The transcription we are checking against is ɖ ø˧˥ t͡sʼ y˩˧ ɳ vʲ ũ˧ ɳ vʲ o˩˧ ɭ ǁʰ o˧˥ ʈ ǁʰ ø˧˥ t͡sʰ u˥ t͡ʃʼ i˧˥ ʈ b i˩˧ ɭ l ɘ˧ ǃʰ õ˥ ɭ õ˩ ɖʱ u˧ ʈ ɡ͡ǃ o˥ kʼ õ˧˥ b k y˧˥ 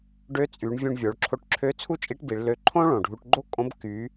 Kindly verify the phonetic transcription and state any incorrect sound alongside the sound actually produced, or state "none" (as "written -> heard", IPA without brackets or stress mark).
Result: ɘ˧ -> ø˧